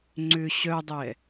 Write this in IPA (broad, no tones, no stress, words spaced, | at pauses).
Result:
ŋ͡ǀʏ ɕœdˤɛ